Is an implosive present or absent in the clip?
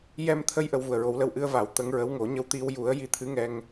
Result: absent